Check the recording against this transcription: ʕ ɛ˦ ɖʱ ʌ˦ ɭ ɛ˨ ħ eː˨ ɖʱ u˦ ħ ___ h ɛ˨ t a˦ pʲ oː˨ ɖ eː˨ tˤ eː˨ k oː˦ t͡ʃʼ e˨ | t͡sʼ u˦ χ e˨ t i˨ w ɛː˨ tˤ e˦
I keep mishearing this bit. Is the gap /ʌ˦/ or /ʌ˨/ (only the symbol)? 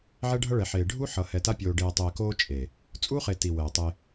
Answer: ʌ˨